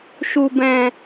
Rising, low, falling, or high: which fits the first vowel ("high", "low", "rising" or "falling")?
low